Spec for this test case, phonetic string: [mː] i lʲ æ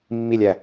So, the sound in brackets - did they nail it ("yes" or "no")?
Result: yes